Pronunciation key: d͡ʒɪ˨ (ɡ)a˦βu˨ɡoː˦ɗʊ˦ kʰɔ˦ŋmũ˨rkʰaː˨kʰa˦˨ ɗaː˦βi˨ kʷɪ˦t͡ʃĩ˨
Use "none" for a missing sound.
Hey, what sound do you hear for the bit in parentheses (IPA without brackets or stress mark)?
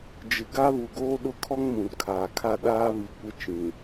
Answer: ɡ